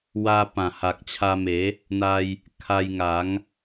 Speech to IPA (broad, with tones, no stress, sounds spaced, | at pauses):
w a˧ p ã˨˩ h a˨ k̚ t͡ɕʰ a˧ m e˨˦ | n̪ a˧ j | kʰ a˧ j ŋ a˨˦ ŋ